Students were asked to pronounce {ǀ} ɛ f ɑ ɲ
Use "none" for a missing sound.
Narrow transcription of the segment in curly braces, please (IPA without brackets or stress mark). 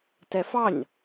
t